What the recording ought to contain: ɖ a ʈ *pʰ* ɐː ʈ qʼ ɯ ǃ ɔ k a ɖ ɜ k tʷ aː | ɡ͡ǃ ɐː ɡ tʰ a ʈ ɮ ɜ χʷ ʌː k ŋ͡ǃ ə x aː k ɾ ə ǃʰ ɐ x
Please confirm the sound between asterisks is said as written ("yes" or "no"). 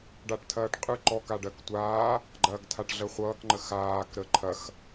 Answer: no